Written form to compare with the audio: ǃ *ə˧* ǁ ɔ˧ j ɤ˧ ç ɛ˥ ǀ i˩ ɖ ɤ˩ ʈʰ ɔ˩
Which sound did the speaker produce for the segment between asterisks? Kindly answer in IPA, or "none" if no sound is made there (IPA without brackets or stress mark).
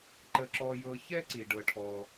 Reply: ə˧